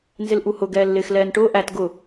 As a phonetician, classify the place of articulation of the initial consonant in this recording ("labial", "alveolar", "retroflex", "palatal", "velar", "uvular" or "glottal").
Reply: alveolar